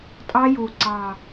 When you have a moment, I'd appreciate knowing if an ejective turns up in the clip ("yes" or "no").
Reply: yes